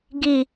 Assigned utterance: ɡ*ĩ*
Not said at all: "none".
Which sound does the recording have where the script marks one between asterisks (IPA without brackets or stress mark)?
i